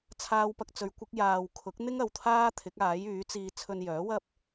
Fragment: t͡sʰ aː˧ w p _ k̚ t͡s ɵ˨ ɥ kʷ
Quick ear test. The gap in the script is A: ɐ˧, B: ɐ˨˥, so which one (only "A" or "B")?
A